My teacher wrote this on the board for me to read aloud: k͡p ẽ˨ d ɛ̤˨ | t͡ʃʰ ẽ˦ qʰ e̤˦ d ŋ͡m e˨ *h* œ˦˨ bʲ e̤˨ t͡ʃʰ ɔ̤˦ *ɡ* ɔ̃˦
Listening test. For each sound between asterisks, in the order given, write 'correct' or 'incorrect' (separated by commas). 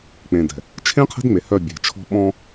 correct, incorrect